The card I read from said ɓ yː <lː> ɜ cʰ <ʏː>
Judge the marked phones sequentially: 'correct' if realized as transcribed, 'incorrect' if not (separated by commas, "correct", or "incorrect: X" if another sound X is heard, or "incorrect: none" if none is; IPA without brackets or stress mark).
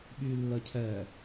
correct, incorrect: ɛː